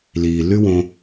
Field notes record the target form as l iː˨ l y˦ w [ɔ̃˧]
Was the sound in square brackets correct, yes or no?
no